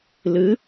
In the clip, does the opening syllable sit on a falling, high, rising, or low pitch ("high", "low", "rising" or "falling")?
rising